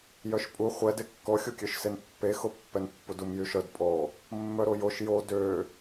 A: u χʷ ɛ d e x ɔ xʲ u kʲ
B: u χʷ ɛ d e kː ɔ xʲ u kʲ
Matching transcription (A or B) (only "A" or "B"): B